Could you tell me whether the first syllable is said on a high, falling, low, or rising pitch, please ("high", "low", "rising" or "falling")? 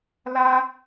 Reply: high